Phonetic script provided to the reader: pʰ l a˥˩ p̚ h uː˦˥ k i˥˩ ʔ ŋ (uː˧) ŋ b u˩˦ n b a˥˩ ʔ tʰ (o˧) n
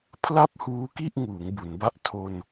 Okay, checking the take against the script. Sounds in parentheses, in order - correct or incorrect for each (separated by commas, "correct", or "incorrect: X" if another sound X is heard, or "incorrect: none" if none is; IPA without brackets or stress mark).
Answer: incorrect: uː˩˦, correct